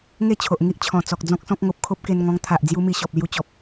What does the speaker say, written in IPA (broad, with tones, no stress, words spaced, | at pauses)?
ŋe˥˧t͡ɕʰo˨ʔ ŋi˦ʔt͡ɕʰɔ̃˨˩ t͡sɔ˨k̚d͡zɔ̃˦k̚sɔ̃˦k̚ ŋo˨p̚kʰo˦p̚ ke˧nŋɔ̃˧ŋt̪ʰa˨ʔ d͡zju˦mi˧ɕɔ˨p̚ lju˧ t͡ɕɔ˨p̚